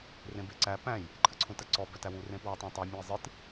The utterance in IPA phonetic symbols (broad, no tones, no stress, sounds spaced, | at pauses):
r ẽ b e ǀ æ p æ̃ j | ǃʰ ɨ ǀʰ ũ t ɜ ǀ ɔ b œ t æ w u r ẽ p w œ tˤ æ̃ tˤ ɜ mʲ ɔ̃ i̯ zˤ ɨ t